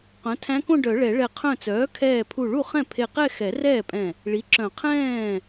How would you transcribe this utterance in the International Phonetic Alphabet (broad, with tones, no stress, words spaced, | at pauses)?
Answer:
qœ̃˩˥tʰæ̃˧˥kõ˥˧ɖœ˨˩˦ ɭɛ˨˩˦ɭɛ˧˩ qʰœ̃˧˩t͡sœː˩˥kʰɛː˧˩ pʰu˧˩ɭu˥˩ χɛ̃˥˩pʰe˧˩qɛ˥˧ xɛ˨˩˦rɛː˥˩pʼɛ̃˧˩ | ɭi˩˥ǁœ̃˨˩˦ qʰɛ̃ː˥˩